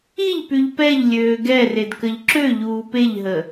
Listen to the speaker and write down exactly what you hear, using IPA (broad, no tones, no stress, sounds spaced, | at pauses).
i ʎ p y ʎ p ɛ ʎ lʲ øː ɡ ɛ r e d k ə ʎ ǁ ø ʎ uː p e ʎ ɦ ə